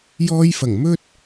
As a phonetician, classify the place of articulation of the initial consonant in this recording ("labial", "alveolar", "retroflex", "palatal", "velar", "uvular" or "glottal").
palatal